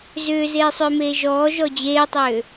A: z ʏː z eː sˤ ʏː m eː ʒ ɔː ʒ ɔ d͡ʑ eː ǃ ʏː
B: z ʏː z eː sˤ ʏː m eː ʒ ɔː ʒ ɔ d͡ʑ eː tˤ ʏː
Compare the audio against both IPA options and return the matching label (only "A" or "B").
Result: B